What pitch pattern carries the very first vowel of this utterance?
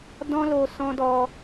high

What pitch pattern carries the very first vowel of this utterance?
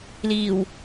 low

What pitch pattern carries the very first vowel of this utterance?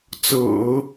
low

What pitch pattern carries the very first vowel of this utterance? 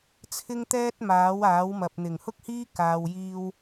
high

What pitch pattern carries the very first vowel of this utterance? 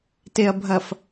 low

